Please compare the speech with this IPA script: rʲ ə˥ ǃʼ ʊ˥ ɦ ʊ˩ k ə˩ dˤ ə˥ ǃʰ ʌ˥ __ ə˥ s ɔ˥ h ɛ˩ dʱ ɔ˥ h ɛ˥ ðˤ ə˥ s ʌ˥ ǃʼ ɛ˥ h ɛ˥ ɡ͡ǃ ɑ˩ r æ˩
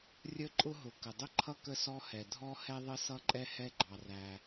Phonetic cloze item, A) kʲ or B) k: B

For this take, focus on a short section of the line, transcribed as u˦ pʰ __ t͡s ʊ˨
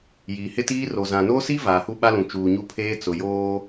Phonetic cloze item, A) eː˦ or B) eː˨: A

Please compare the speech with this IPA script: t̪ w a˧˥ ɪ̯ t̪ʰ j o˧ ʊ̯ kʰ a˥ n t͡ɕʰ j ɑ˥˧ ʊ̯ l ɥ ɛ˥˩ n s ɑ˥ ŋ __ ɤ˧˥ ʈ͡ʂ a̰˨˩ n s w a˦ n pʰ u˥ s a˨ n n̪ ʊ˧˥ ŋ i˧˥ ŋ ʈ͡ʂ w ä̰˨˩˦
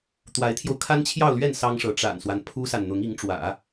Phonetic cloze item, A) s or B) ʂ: B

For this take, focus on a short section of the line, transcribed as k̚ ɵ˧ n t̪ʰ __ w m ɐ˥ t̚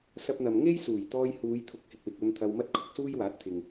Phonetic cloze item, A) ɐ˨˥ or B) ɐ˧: B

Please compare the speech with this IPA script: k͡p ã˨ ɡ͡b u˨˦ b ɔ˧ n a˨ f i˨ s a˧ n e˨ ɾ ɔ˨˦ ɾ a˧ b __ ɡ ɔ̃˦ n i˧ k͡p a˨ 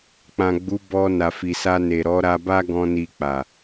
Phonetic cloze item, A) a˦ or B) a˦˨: A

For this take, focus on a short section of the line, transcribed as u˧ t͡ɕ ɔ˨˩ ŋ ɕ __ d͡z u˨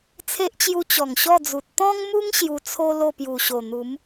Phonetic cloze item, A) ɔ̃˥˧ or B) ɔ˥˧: B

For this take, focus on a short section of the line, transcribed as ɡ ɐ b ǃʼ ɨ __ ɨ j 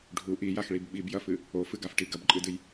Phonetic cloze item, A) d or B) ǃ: A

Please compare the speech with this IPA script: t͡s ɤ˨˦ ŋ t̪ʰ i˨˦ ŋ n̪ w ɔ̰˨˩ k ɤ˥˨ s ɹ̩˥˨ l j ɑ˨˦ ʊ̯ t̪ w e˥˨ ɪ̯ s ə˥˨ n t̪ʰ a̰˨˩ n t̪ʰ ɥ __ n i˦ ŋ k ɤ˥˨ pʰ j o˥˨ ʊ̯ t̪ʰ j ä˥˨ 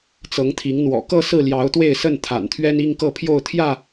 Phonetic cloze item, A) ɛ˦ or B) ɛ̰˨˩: A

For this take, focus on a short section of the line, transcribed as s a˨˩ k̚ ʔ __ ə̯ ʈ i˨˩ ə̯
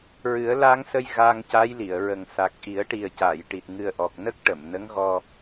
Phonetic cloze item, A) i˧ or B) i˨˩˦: B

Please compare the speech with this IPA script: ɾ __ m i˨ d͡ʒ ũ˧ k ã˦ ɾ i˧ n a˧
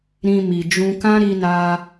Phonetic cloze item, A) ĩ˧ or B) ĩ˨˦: A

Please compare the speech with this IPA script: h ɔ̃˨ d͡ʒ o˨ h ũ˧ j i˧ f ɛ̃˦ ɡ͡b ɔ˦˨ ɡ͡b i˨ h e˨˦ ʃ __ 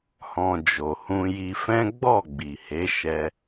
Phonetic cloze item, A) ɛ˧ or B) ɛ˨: A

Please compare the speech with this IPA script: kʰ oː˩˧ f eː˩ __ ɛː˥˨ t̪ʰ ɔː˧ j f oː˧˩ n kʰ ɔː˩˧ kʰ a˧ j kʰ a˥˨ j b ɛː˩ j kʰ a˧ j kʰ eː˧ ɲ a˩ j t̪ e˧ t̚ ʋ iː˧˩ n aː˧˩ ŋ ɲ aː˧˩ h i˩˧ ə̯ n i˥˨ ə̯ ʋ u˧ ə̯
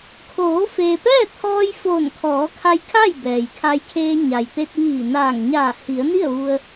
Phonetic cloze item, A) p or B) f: A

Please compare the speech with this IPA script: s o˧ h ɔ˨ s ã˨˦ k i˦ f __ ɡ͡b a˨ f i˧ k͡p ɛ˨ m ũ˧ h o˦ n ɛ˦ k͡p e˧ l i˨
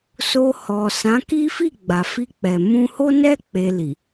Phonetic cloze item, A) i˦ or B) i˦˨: B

